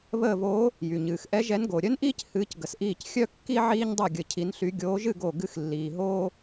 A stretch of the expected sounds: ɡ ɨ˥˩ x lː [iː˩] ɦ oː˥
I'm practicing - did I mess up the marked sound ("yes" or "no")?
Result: no